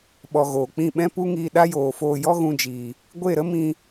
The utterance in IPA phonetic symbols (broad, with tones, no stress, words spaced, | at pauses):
ɓɔ˨ ɣoː˨k͡pĩ˦˨ ɓɛ̃˦pu˦ŋiː˧ ɗa˦joː˨foː˧ jɔ˦ɣũ˧d͡ʒiː˨ | ɡʷe˦˨ɾə˦mĩ˧